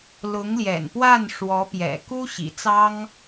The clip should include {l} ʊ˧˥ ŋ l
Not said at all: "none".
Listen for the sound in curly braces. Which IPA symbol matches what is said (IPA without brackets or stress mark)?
l